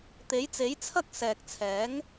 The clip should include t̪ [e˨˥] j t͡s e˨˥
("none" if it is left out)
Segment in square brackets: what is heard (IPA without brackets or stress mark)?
e˨˥